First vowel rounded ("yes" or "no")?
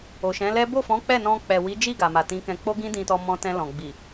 yes